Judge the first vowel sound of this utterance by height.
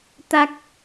low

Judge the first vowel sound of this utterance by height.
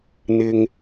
high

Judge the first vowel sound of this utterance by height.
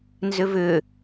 high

